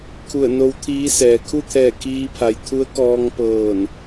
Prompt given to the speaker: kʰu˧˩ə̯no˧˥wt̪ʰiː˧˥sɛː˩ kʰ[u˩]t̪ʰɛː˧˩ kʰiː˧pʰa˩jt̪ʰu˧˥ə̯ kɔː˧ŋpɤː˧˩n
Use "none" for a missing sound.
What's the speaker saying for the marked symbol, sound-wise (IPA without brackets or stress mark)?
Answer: u˥˨